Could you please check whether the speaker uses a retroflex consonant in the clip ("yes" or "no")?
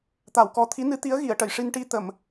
yes